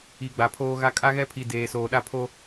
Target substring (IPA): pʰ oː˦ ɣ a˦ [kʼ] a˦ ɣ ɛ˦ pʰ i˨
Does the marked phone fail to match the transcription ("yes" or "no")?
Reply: no